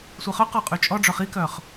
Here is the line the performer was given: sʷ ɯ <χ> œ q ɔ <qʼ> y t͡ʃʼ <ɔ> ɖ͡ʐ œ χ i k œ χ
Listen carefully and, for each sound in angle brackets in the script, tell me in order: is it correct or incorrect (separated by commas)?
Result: correct, correct, correct